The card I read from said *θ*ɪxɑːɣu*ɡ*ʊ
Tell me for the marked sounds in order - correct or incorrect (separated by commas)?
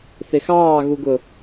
correct, correct